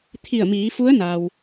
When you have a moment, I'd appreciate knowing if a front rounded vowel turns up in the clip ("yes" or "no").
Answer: no